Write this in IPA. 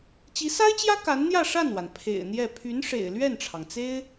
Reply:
t͡ɕ i˧˥ s a˥ ɪ̯ t͡ɕ j ä˥ k a˧˥ n n̪ j ä˥˧ ʂ a˥˩ n w a˩ n pʰ ḛ˨˩ ɪ̯ n̪ j ɛ˥˩ pʰ y˧˥ n ʂ ḛ˨˩ ɪ̯ l ɥ ɛ˥˩ n ʈ͡ʂʰ ɑ˩ ŋ t͡s e˥ ɪ̯

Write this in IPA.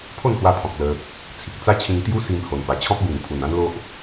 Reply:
pʰ o˥˧ n h w a˧ pʰ ɔ̃˨ k̚ l ə˧ | t͡sʰ i˨ k̚ t͡s a˦ t͡ɕʰ ĩ˧ ŋ t̪ j u˦ s i˧ m h o˨˩ n p a˨˩ t͡ɕʰ ɔ̃˦ p̚ b ĩ˨˩ n pʰ u˨˩ n ã˦ n l o˦ ʔ

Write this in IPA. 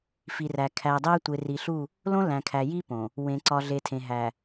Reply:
f i˨ r æ˨ kʰ æ˨ dˤ æ˦ tʷ e˨ r i˨ ɬ u˦˨ | l õ˦ l æ̃˨ kʰ æ˨ j i˦ p õ˨ | w ẽ˨ ǀ ɒ˨ ɮ e˨ tʰ ẽ˨ ɦ æ˨

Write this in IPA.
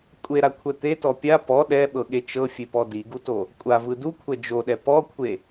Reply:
kʷʼ e ɾ a kʷʰ ɛ t̪ e t ɔ pʲ a p ɔ ɗ ɛ ɓ ɤ ɠ e t͡ʃ ɤ fʲ e p ɔ d i ɡ u t o | kʷʼ a v ɯ d u kʷʰ ɛ d͡ʒ o ɗ ɛ p ɔ kʷʰ e

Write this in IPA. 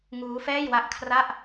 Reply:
ŋ uː˦˥ f ɛː˥˩ j w a˥˩ ʔ kʰ r a˥˩ ʔ

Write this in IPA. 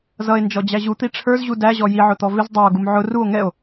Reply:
z ʌ e̯ n d͡ʒ ɔ d͡ʑ æ ʑ u t̪ i ʈ͡ʂʰ ə˞ z ʑ u d æ ʑ ɔ j i ʕ ʊ t̪ ɔ v ɪ z dˤ æ o̯ ɡ u m ʕ ʊ r u o̯ ŋ ɛ o̯

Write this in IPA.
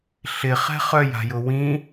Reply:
ɬ ɪ χ ɛ̤ χ œ j a̤ j ʊ w ĩ

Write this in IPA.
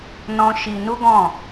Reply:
n ɔ̃˦ ʃ i˧ n u˦ ɡ ɔ̃˦˨

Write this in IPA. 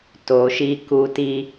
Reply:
t o˨ ʃ i˧ k u˧ t i˧

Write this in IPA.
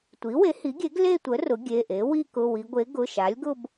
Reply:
tʷ i˩˥ w e˩˥ h i˩˥ ɡʲ e˩˥ ɡ l e˥˧ tʷ ə˩˥ r ʊ˩˥ ɡʲ e˩˧˩ ʔ e˩˥ w i˥˧ k ʊ˩˧˩ w i˩˧ ɡʷ e˩˥ ɡ ʊ˩˧˩ ʃ a˩˥ lʲ ɡ ʊ˥˧ b

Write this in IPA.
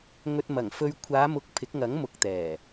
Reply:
ŋ ɵ˧ t̚ m ɐ˨˩ ŋ f ɵ˧ ɥ kʷʰ aː˨˧ m ʊ˨˥ k̚ pʰ ɪ˨˥ k̚ ŋ ɐ˨˥ ŋ m ʊ˨˥ k̚ t̪ ɛː˨˩

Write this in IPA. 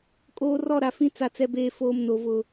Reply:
kʼ oː˨ r ɔ˦˨ ɾ a˨ f ĩ˦ t͡s a˨ t͡s ɛ˨ b eː˨ f oː˨ m n o˨ v ʊ˨

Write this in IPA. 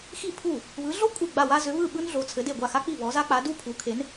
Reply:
x i˥˨ pʰ u˥˨ | β ɯ˨˦ ɮ o˥ kʷʼ i˥˨ ɡ͡b a˥˨ w a˥ z ʏ˨˦ β ɯ˥˨ ɓ ɯ˥ n ɮ o˨˦ t͡sʰ ɘ˨˦ d e˥˨ ɡʷ a˥˨ x a˥ k͡p i˥˨ β ɔ˨˦ z a˥ k͡p a˨˦ d u˥˨ pʰ u˨˦ kʰ e˨˦ n

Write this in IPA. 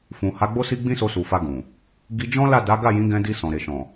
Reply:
f ũ˨ h a˨˦ ɡ͡b o˦ s i˦ ɡ͡b ĩ˦ s o˧ s u˨ f a˧ ɡ ũ˨ | ɡ i˧ d͡ʒ ɔ̃˦ l a˦˨ d a˨˦ ɡ a˦˨ j ĩ˨˦ ɡ ɛ̃˧ d i˧ s ɔ̃˨ ɾ e˨ ʃ ɔ̃˨

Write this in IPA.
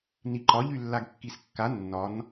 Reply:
n i ǃ ɒ ʎ y lː a ɡ kː i s kː a nː ɒ n

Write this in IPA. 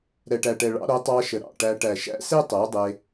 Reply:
ɾ ɛ˨ ʈ æ˨ ʈ ɛ˨ ɭ ɑ̰˧ ɾ o˨˦ tˤ ɑ˧ ʃ ə˨ ɾ ɑ̰˨ ʈ æ˧ ʈ æ˨ ʃ æ̰˦ s e˦ tˤ æ˨˦ dˤ e˧

